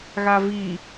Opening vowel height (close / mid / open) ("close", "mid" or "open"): open